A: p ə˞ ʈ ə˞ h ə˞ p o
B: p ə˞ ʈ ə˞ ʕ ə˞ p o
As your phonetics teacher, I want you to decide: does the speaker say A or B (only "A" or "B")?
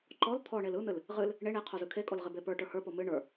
A